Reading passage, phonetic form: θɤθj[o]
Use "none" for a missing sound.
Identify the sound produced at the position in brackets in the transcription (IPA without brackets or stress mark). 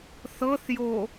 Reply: o